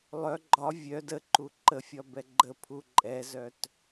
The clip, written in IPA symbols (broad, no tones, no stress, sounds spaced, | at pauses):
lˠ œ ɡ͡ǃ ɒ vʲ œ d ə ǃ u ǃ ə fʲ ɒ b ɛ ɡ͡ǃ ə pʰ u ǃʼ ɛ z œ t